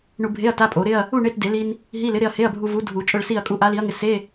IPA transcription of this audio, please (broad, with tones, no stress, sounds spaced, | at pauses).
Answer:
ɳ u˧ bʱ e˧˥˧ ɐ̯ t a˧˥˧ pʼ o˨˩˦ ɾ ɪ˧˥˧ ɐ̯ | u˥˧ ɳ e˧˥˧ t d e˨˩˦ l i˧ n | ɦ i˧˥˧ l ɪ˨˥ ɾ ɪ˧ ɐ̯ h e˧˥˧ ɐ̯ bʱ u˧ v u˨˥ dʱ u˨˩˦ t͡ʃʼ ʊ˥˧ ɭ s i˥˧ ɐ̯ kʼ u˥˧ ʔ a˨˥ l i˨˥ ɐ̯ ŋ ɪ˧ s e˧˥˧